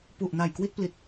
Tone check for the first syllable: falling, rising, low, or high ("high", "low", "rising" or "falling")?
low